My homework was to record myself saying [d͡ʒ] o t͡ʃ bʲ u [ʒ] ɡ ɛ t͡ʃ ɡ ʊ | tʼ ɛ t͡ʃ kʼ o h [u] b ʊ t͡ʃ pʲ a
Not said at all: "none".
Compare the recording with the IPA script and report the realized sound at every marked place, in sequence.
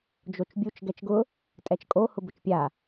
d͡ʒ, t͡ʃ, ʊ

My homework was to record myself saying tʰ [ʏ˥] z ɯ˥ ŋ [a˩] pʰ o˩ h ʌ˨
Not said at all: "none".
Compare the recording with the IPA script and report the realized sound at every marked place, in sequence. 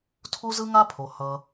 u˥, a˥

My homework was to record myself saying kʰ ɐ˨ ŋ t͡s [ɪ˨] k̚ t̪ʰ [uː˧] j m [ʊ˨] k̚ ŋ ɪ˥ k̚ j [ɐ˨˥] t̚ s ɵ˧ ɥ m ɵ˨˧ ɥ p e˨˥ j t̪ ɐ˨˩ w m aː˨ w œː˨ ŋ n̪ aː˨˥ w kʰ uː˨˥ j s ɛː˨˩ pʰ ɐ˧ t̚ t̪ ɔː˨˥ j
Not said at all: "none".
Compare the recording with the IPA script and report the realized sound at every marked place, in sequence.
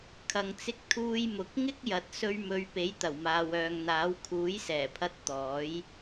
ɪ˧, uː˧, ʊ˨, ɐ˨˥

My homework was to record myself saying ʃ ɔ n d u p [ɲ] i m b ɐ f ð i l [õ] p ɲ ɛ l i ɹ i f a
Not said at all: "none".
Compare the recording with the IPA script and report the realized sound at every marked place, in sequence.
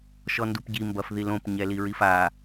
ɟ, õ

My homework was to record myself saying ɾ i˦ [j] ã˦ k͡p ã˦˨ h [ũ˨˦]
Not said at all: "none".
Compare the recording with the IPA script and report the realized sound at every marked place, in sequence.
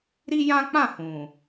j, ũ˨

